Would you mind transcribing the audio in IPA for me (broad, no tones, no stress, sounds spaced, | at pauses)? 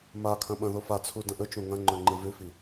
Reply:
m a kʰ ɐ̃ ɓ ɐ̃ ð o f a t͡sʰ u d ɐ̃ ʔ ɵ t͡ʃ õ ŋ ɐ̃ ŋ͡ǃ ɵ ŋ͡ǃ ɨ v ʉ f i